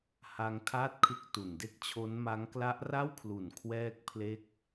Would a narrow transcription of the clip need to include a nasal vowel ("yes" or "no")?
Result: no